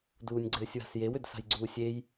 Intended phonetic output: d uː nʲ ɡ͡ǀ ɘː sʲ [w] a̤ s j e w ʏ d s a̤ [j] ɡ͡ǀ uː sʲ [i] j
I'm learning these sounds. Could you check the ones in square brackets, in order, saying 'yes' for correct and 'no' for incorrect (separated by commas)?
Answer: yes, yes, no